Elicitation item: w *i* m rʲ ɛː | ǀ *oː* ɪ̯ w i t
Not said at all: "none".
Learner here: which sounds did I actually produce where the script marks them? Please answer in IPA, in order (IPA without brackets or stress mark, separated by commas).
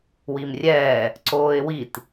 i, oː